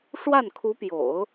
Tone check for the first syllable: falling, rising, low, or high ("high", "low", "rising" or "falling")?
falling